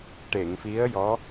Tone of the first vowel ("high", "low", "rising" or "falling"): low